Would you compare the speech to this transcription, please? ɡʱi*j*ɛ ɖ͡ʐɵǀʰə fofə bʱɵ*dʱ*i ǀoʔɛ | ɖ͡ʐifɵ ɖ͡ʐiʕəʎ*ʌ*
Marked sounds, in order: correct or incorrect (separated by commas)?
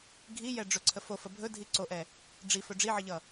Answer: correct, correct, correct